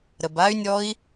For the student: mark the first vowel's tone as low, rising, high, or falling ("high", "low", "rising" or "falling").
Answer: low